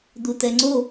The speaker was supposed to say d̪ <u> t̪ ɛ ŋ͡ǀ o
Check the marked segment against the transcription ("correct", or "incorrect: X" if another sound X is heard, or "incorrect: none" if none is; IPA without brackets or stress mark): correct